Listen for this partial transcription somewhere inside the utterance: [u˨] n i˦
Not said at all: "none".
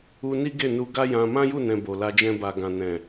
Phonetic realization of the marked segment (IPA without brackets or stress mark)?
u˧